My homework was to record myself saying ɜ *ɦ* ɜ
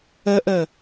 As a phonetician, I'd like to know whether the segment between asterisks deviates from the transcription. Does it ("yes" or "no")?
yes